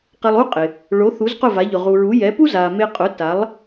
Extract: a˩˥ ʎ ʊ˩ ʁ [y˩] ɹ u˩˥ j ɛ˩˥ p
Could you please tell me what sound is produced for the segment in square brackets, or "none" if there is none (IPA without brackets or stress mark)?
u˩